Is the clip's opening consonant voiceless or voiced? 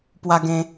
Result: voiceless